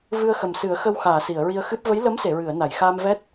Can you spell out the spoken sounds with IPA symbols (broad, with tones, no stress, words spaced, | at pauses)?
vɨ˧ə̯xə˨˩m sɨ˨˩˦ə̯xə˧w xaː˨˩˨si˨˩˨ə̯ɹi˧ə̯xɨ˦˥p̚ və˧˥jlə˧˥m se˨˩˨ɹɨ˨˩˨ə̯na˨˩˨jxaː˧m vɛ˦˥t̚